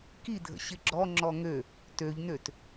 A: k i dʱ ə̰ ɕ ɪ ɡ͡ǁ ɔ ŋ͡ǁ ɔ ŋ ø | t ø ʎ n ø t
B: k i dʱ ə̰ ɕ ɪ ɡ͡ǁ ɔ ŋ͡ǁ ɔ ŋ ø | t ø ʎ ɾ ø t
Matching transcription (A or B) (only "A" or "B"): A